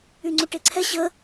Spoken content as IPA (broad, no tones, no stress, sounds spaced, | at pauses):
y ŋ͡ǀ u ʈ e ǀʰ ɛ ɕ ə